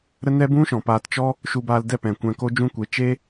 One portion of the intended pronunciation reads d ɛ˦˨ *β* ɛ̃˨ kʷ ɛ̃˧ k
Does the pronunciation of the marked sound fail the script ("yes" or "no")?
yes